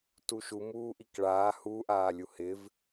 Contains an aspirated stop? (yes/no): no